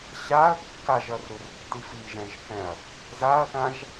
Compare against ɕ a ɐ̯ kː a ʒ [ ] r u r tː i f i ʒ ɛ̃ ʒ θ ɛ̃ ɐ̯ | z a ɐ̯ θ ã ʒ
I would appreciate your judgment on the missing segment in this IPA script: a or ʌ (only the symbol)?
ʌ